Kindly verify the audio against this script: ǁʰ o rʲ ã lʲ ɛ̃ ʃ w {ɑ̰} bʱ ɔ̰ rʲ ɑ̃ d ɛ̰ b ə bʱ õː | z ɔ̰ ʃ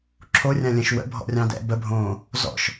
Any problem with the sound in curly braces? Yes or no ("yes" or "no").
yes